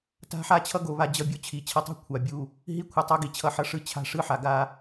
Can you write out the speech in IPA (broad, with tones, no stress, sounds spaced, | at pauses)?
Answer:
t a̤˦ ħ a˦ t͡ɕʰ ʌ˦ ɡ o˨ β a˦ d͡ʑ ʌ˦ bʲ o˦ t͡ɕʰ i˨˦ t͡ɕʰ ʌ˦ tˤ ṳ˦ kʷʰ a˨ bʲ u˦˨ | ɦ i˦ kʷʰ ʌ˨ tˤ o˦ ɡ i˨ t͡ɕʰ ʌ˦ ħ ʌ˦ ʂ ɯ˦ t͡ɕʰ a̤˦ ʂ ɯ˦ ħ a˨ ɡ a˦